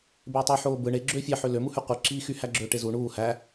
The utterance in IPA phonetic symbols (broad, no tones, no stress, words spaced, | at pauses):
beːtˤy ħoːbɯ ɳe ɡ͡ǁøːfʲɑ ħølø muhyqʷɯ ǁiːxy hæɡ͡ǁøːʈezu ɳuː hæ